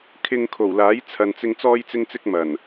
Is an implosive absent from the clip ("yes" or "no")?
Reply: yes